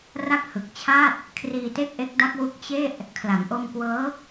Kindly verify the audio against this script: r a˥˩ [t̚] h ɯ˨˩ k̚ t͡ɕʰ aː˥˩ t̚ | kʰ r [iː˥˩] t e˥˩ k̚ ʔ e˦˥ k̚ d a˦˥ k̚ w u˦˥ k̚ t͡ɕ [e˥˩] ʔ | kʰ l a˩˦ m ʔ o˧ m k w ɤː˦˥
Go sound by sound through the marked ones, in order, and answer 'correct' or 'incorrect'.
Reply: incorrect, incorrect, correct

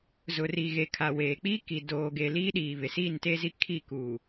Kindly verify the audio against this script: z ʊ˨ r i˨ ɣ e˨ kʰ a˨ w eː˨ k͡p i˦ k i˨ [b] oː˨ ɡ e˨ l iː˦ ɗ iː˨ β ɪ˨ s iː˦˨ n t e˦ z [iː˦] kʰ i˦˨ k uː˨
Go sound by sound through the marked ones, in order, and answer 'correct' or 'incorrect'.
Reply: incorrect, incorrect

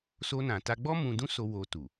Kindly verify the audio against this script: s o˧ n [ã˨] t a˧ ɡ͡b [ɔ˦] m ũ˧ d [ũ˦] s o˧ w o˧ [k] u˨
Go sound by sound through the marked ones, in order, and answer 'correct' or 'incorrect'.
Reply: correct, correct, correct, incorrect

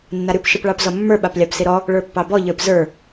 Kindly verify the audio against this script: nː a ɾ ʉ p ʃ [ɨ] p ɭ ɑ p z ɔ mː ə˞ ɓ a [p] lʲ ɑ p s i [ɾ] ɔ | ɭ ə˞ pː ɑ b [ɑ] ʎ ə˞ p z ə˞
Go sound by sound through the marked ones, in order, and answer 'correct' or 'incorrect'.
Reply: correct, correct, correct, incorrect

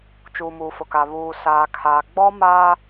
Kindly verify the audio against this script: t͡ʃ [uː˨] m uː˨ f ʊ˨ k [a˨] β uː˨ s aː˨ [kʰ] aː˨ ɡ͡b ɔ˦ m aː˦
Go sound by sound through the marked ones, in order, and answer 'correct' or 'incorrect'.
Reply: correct, correct, correct

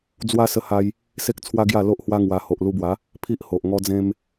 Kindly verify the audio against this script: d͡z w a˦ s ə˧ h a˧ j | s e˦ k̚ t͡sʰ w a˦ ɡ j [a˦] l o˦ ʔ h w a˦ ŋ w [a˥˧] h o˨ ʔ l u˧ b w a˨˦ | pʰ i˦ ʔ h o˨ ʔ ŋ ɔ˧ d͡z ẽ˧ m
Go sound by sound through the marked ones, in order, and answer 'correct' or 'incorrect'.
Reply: incorrect, incorrect

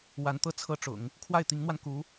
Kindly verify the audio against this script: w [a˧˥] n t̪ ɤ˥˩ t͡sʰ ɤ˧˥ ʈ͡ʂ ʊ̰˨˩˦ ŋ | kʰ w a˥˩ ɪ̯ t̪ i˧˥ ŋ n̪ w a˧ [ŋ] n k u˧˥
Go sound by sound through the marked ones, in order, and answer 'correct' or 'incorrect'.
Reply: correct, incorrect

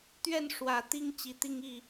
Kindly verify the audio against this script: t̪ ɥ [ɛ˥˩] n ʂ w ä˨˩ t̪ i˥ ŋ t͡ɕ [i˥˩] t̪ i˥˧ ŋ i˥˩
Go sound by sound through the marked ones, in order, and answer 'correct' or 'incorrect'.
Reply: correct, incorrect

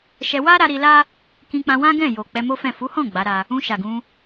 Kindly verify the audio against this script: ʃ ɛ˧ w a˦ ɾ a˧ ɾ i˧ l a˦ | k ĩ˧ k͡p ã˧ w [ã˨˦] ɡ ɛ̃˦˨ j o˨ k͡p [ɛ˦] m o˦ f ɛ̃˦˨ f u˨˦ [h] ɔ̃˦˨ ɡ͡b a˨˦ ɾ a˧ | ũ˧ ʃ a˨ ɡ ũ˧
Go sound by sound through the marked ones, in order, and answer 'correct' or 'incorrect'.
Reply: incorrect, incorrect, correct

